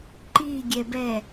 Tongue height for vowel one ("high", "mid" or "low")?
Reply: high